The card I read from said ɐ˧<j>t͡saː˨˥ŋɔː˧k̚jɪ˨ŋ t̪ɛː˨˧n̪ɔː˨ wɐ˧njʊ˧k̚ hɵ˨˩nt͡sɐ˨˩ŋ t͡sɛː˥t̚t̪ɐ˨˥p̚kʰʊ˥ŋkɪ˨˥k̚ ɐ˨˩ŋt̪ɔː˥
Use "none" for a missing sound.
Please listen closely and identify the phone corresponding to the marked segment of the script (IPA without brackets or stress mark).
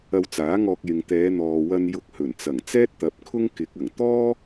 w